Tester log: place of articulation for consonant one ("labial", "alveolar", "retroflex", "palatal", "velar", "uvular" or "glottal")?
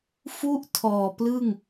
labial